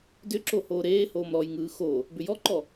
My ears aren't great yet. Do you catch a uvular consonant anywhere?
no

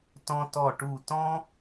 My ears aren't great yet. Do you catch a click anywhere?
no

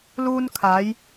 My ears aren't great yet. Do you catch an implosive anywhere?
no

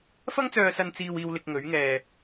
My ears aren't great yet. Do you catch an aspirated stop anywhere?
no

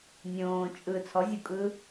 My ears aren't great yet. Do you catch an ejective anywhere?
yes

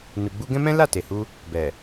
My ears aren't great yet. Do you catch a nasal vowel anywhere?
yes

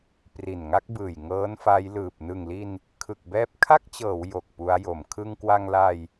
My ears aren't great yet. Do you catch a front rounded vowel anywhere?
no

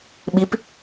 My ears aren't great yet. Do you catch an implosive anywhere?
yes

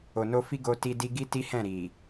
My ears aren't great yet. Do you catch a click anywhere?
no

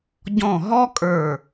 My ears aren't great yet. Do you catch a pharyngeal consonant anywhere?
no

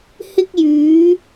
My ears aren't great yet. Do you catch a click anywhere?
no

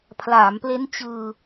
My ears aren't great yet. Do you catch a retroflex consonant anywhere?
no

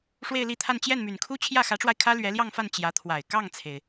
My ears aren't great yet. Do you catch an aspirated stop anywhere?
yes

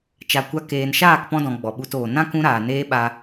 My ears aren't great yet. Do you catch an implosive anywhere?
yes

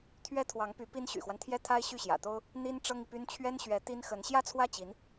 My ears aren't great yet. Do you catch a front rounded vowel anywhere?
yes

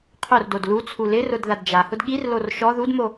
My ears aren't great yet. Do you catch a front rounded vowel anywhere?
no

